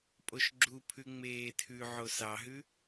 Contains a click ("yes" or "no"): yes